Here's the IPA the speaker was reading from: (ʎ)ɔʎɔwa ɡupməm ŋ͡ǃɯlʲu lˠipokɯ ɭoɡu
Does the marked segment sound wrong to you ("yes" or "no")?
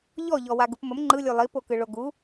no